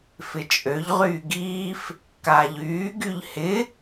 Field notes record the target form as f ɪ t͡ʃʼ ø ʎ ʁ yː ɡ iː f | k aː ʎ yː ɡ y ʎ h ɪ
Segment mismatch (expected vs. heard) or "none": none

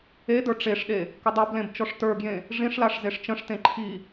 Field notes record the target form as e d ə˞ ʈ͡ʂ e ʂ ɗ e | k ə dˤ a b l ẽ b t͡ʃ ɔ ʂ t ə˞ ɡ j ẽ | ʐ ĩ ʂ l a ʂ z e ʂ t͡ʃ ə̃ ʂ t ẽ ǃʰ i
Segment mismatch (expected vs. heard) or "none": none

